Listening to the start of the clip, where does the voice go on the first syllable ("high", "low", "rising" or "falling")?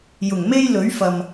low